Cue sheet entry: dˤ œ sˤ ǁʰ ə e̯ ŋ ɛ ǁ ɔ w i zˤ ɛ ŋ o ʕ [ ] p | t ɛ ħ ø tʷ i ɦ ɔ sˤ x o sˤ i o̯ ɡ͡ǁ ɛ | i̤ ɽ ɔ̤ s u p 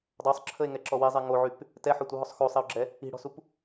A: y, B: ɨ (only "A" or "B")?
A